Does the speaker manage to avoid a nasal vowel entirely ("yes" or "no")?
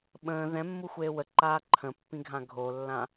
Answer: no